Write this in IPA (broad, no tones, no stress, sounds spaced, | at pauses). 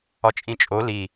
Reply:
ɒ t͡ʃʼ ĩ t͡ʃʼ o l i